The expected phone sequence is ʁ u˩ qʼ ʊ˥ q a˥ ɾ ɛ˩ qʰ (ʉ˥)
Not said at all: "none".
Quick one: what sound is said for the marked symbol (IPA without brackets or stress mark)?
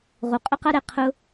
ʊ˥